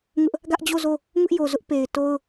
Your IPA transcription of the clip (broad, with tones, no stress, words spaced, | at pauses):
ŋʊ˦ʔ | ɡä˦ʔd͡ʑo˦˨zo˦˨ | ŋʊ˦ʔjo˨zʊ˦ʔ pe˨ɪ̯ to˦ʊ̯